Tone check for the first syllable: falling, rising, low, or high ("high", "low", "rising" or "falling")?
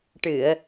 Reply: low